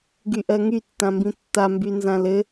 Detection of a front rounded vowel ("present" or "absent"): present